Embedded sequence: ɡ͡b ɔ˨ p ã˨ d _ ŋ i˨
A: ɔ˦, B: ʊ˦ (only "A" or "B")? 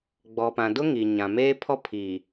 B